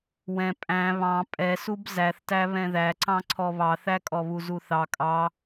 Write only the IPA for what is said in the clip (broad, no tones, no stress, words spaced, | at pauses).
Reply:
wɛ̃ pʼæ̃ βɑ̃ pʼɛsub zæθtæ βɛ̃ðæǀɑ̃ǀʰɔ βɑθækʼɔβu zuθɑ kʼɑ